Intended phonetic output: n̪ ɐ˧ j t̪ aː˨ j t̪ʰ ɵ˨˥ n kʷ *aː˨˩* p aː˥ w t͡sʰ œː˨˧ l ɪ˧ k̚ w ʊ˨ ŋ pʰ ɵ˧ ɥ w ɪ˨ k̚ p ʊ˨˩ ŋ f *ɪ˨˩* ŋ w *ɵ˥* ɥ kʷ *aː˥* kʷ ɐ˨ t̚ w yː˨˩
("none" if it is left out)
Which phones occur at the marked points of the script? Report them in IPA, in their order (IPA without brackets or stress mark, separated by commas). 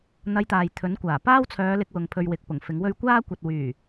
aː˨˩, ɪ˨˥, ɵ˥, aː˥